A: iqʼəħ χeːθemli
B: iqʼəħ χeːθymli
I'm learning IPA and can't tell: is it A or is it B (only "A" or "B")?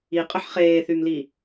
B